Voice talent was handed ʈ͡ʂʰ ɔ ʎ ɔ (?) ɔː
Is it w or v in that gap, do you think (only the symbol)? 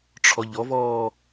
v